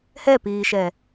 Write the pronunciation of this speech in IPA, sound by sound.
h ɛ p iː ʃ ɛ

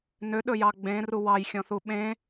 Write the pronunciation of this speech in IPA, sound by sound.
n ø ɗ ɵ j ɑ ɡ͡b ẽ r u w ɑ j xʲ ɔ̃ θ u ɓ ẽ

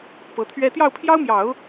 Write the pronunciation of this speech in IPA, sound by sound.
p ɤ˧˥ t̪ʰ ɥ ɛ˥ t̪ j ɑ˥˩ ʊ̯ pʰ j ɑ˥ ʊ̯ m j ɑ˨˩˦ ʊ̯

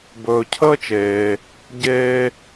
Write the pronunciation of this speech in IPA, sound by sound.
b ɵː˧ cʰ əː˥ t͡ʃ eː˧ | ɟ eː˥

